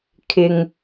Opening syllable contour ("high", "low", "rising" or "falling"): low